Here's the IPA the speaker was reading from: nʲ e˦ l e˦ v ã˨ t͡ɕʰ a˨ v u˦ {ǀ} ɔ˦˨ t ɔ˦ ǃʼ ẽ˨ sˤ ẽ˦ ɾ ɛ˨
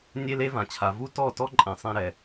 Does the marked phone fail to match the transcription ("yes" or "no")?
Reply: yes